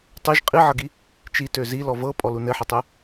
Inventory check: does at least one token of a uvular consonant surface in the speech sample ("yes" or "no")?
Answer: yes